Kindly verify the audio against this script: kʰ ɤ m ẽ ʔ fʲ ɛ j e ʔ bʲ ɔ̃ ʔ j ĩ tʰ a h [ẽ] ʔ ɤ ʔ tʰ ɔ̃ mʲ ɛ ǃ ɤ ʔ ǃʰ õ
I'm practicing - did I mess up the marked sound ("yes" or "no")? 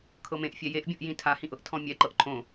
yes